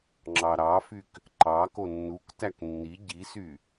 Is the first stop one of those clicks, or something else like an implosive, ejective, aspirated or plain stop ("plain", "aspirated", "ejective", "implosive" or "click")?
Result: click